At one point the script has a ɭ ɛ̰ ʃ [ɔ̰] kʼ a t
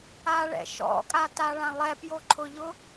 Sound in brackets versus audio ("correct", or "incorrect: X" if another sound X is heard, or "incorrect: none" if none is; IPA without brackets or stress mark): correct